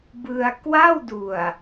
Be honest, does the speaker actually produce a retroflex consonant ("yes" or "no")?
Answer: no